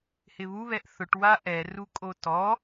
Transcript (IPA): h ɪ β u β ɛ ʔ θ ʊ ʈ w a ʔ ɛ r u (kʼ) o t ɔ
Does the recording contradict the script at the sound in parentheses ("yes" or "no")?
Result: no